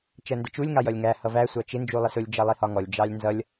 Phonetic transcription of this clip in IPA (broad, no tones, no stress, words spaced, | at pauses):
t͡ʃɜndɪt͡ʃulʲ ŋɑjʌlʲŋæ hʌvæ sʷɑt͡ʃɪ nd͡ʒulˠɪsʊlʲ d͡ʒʌlˠihɒŋɔlʲ d͡ʒɑlʲnzʌlʲ